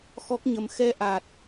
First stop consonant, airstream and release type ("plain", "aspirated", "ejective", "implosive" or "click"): plain